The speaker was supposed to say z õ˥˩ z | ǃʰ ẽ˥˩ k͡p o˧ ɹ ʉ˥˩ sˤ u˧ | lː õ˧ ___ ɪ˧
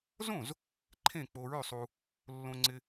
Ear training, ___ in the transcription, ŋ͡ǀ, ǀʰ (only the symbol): ŋ͡ǀ